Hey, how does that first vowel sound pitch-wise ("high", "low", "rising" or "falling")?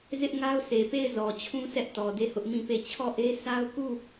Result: high